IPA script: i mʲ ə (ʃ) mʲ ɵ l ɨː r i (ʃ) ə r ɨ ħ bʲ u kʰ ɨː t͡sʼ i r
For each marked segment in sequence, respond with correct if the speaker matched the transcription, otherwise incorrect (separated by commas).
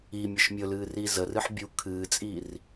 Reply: correct, incorrect